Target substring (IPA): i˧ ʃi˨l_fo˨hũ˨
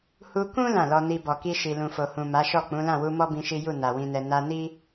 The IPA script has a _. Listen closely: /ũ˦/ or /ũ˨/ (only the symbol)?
ũ˨